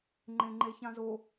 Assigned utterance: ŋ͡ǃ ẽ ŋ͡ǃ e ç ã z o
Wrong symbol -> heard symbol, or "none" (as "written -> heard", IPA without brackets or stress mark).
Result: none